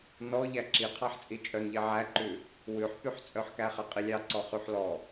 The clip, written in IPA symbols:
n ɔ ʎ æ ǁ i qʰ ɑ ħ t͡sʼ i t͡ʃʼ œ n ʎ i ʕ æ ǃ ʉ | w ʉ ħ p y ħ t͡sʼ œ ħ k æ χ ɛ qʼ i lʲ ɑ ǀ ɔ χ y ħ l ɔ

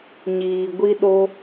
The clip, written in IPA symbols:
ɲ iː˧ ɡʷ i˦ ɗ o˦

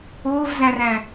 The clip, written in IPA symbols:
ʊː v z æ̃ r æ̃

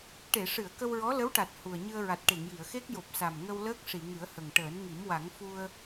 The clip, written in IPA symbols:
ʈ e˨˩˨ ʂ ɨ˨˩˨ ə̯ k ə˧ w ɹ ɔ˧˥ l ə˧˥ w ʈ a˨˩ t̚ h u˨˩ ə̯ ɲ ɨ˧ ə̯ ɹ a˨˩ t̚ ʈ e˨˩˨ ŋ j i˨˩˨ ə̯ x e˦˥ k̚ j o˨˩ p̚ s a˨˩ m ŋ ə˧ w l əː˦˥ k̚ ʂ i˨˩˨ ŋ ɨ˨˩˦ ə̯ h ə˨˩ ŋ ʈ əː˨˩˦ n ŋ i˨˩˦ m w a˨˩˦ ŋ f u˧ ə̯

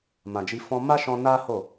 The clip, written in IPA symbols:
m ã˨ d͡ʒ i˧ f ɔ̃˧ m a˦ ʃ ɔ̃˧ n a˦ h o˦˨

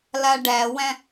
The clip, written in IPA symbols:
l a ɖ æ w æ̃

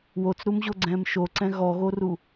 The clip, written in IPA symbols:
w o t͡s ɾ u m ʑ o ɡ͡ǀ ɛ̃ː m ʃ o ǀ ɛ̃ ɣ ɔ ɣ o r u

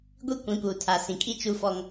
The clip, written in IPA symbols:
ɡʷ i˦ kʷ ĩ˨˦ p uː˨ tʰ a˨ s ĩ˨ kʼ i˦ t͡ʃ u˦ f ɔ˦ ŋ

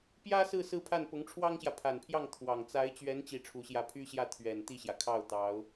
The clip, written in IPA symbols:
p j ä˥ s ɹ̩˥˧ s ɹ̩˥˧ pʰ a˥˩ n p ʊ˧˥ ŋ ʈ͡ʂʰ w ɑ˥ ŋ ɕ j ä˨ pʰ a˨˩ n pʰ j ɑ˥˩ ŋ t̪ʰ w ɑ˨˩ ŋ t͡s a˧˥ ɪ̯ t͡ɕ ɥ ɛ˧˥ n t͡ɕ i˥˩ ʈ͡ʂʰ u˧˥ ɕ j ä˥˩ pʰ y˥ ɕ j ä˥˩ t̪ʰ ɥ ɛ˨˩ n t̪ i˥˩ ɕ j ä˩ kʰ ɑ˥˩ ʊ̯ t̪ ɑ˧˥ ʊ̯

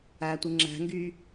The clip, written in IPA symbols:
æ tʷ ɯ ŋ͡ǁ æ̤ ŋ ɡ y

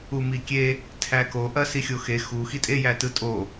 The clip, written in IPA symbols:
u m i kʲ e | tʰ æ k o ʔ ɐ s i xʲ o x e x u x i tʼ e j æ t ɯ tʼ o

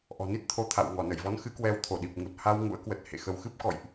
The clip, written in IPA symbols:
ʔ ɔ̤˨˩ n i˦˥ t̚ t̪ʰ o˧ t̪ʰ a̰˧˨ w ŋ ɔ˧˩ n ə˧˩ j v ɔ˨˦ n x ɨ˨˦ k w ɛ˨˦ w t̪ʰ o˧˩ ɗ i˨˩ p̚ ŋ u˨˩ t̚ h a˧ w ŋ ṵ˧˥ ə̯ k w ə˨˩ t̚ h ḛ˧˨ x ə˧ w x ɨ˦˥ p̚ k ɔ̰˧˨ j ʔ

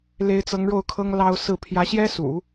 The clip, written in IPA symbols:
l e˧˥ ɪ̯ t͡s ɤ˧˥ ŋ ɻ o˥˩ ʊ̯ kʰ ɤ˥ ŋ l ɑ˥ ʊ̯ s ɹ̩˥˩ pʰ j ä˧˥ ɕ j ɛ˥ s ṵ˨˩˦

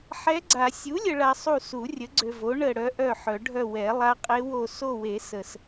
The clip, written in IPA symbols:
ħ ɛ˧˥ ɡ͡ǀ a˨˩˦ sʲ u˩˥ lʲ ə˨ ɭ a˨ sˤ u˦˨ s u˨˩˦ rʲ ə˩˥ ɡ͡ǀ ø˨ v o˩˥ ɳ ə˦˨ ɽ œ˧˥ ʔ œ˦˨ ħ œ˨˩˦ ɖʱ œ˦˨ w ɛ˨˩˦ lˠ a˧˥ qʼ e˧˥ w o˦˨ s o˦˨ w e˨˩˦ s ə˨ s

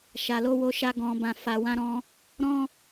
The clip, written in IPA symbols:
ʃ a˨ l o˧ w o˧ ʃ a˧ ɡ ɔ̃˨ b ã˨ f a˨ w ã˧ ɾ ɔ̃˧ | ɾ ɔ̃˦

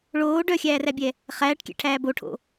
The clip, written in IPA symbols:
ɭ oː ɖ œ xʲ æː r æ bʲ ɛ | χ æː ʈ kʲ ɛ̰ ʈʰ æː b o ʈʰ o̰

